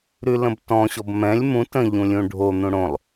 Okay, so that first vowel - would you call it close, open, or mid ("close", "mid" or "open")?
close